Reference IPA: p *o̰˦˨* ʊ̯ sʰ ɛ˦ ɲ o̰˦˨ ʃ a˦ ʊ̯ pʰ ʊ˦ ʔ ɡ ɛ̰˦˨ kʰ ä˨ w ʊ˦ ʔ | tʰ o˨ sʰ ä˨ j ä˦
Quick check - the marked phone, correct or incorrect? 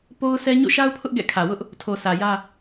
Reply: incorrect